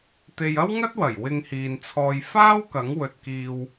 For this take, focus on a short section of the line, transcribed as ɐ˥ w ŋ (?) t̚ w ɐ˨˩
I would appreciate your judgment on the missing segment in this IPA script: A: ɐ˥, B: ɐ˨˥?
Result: A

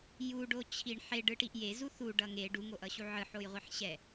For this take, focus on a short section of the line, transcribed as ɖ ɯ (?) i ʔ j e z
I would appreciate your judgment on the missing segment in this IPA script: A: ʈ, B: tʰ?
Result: A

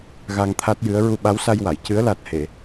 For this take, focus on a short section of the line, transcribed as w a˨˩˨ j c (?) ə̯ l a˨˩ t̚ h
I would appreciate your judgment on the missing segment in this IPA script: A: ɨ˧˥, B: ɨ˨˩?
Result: A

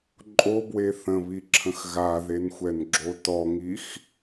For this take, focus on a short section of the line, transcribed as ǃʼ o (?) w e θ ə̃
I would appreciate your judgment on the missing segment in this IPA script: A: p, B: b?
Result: B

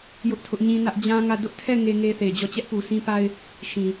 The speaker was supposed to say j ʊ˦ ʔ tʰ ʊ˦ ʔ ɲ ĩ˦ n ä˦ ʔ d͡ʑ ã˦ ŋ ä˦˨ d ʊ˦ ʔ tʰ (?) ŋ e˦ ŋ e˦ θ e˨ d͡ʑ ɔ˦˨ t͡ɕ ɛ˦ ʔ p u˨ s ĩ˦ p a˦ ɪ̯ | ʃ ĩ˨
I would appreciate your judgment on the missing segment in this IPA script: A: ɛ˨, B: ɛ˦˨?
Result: B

